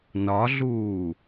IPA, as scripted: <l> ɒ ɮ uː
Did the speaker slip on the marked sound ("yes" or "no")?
yes